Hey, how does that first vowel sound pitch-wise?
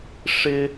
high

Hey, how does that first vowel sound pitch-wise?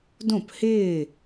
falling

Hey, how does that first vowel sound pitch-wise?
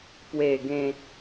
low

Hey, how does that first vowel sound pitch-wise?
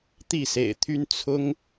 falling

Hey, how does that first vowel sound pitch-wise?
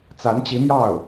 rising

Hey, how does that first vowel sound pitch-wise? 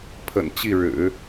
low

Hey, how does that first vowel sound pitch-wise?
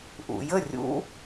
low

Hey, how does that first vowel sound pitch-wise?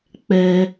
high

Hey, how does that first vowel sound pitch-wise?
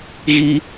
high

